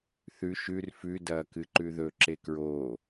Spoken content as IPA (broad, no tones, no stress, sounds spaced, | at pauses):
θ ʉ ʃ ʉ r f ʉ d ɐː k ɨ ǃ ʉ ð ɵ ǁ e k ɹ oː